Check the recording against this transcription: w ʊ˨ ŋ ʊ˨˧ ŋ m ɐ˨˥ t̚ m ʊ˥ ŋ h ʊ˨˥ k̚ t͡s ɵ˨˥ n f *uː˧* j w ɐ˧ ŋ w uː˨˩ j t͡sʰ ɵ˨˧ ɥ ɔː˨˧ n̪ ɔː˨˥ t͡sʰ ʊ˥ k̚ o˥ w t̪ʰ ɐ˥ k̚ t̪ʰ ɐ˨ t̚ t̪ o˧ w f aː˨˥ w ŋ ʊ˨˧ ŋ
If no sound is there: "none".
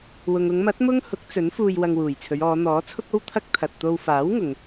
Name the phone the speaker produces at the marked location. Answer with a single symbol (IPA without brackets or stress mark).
uː˧